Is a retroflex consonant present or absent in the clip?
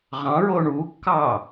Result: present